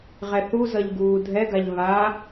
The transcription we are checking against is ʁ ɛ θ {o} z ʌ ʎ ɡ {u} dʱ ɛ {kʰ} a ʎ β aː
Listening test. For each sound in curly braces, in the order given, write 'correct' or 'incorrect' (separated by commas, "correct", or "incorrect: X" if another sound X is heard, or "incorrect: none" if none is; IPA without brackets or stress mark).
incorrect: u, incorrect: uː, incorrect: ɡ